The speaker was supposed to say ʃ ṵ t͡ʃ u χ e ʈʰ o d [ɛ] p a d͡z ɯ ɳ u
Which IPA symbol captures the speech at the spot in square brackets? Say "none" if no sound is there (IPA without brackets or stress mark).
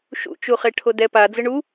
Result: ɛ